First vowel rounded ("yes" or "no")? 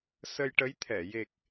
no